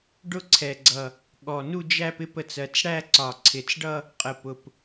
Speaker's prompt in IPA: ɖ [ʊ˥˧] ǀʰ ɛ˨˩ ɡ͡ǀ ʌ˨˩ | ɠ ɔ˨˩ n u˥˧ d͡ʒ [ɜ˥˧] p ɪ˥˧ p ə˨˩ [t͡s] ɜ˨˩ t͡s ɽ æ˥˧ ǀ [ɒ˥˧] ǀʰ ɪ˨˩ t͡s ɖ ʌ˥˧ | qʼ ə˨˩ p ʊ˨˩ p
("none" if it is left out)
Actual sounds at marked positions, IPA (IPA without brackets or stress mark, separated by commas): ʊ˥˧, æ˥˧, t͡s, ɒ˨˩